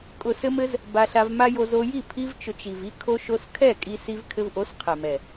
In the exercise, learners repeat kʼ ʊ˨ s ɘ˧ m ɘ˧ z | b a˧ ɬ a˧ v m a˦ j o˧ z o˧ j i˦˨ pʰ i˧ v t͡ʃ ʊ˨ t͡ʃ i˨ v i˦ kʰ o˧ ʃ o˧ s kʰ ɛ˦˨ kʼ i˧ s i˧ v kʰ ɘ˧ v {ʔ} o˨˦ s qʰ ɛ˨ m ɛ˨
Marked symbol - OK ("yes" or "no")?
yes